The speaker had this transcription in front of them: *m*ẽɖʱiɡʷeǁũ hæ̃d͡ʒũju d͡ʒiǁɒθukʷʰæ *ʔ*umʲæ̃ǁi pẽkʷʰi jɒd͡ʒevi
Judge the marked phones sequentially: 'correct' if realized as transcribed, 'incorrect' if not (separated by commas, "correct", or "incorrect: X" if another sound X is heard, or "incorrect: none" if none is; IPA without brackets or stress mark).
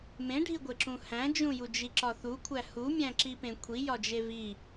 correct, incorrect: h